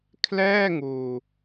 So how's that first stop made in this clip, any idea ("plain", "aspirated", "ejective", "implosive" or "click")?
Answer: aspirated